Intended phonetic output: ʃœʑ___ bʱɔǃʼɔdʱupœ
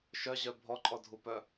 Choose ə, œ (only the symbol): œ